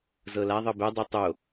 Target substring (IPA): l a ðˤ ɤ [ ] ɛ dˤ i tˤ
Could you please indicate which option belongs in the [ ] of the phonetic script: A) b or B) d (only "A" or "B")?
A